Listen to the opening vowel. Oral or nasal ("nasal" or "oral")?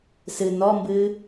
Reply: oral